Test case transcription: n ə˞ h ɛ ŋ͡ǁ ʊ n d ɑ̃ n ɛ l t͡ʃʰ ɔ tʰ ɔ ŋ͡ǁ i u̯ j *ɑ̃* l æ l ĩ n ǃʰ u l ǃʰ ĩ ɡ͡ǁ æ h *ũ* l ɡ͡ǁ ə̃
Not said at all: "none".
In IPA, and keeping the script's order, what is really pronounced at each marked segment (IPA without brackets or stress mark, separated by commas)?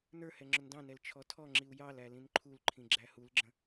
ɑ, u